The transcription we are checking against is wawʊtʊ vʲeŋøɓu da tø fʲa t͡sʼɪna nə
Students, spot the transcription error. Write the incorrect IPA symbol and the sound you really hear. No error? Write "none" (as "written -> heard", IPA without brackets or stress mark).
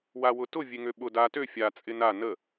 u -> ʊ